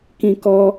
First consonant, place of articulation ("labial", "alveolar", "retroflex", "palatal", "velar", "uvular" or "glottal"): velar